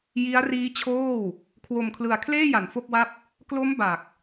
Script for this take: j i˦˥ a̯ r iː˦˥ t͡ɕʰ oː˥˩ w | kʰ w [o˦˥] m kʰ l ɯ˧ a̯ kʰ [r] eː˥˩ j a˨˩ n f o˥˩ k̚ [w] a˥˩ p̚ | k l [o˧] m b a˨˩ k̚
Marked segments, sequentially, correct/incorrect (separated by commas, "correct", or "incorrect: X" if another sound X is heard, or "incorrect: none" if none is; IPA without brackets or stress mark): incorrect: o˧, incorrect: l, correct, incorrect: o˦˥